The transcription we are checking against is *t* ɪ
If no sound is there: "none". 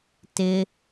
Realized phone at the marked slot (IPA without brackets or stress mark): t